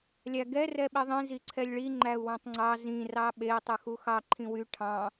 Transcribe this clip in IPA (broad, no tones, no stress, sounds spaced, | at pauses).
lʲ æ ɡ ɛ r ɛ ɓ i ðˤ ĩ z i ǀʰ ɛ lʲ ɭ i ŋ͡ǃ æ u̯ w ɑ̃ tˤ ŋ͡ǀ ɑ z ĩ r ɑ ɓ e i̯ tˤ ʉ x u x ɑ ǃʰ ĩ w y ʈʰ ɑ̃